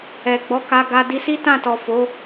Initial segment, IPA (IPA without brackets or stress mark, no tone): ɛ